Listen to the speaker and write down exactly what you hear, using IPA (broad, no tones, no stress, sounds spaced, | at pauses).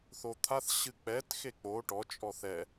θ o t̪ʰ a θ ɕ ɨ k͡p ɛ t x e k͡p o ʈ ɔ t͡ʃʼ ɔ θ ɛ